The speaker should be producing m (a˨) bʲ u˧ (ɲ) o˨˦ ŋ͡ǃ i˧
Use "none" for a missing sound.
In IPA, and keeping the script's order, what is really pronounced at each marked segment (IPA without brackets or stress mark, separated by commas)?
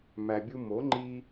æ˨, m